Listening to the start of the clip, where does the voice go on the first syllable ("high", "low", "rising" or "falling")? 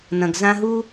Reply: low